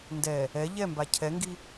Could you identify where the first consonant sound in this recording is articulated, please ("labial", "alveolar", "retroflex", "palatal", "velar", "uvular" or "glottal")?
alveolar